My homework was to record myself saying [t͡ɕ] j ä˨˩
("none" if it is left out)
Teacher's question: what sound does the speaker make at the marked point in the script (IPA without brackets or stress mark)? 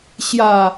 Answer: ɕ